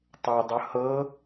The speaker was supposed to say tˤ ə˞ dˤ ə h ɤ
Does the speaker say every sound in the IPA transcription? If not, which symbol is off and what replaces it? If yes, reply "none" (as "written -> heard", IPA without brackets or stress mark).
none